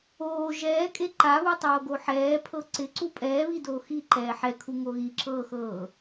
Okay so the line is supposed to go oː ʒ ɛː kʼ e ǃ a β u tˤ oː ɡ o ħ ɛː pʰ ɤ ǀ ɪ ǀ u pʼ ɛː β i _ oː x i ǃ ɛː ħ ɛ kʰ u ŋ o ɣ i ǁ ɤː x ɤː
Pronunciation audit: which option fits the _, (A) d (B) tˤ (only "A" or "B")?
A